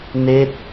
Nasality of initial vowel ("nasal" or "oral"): oral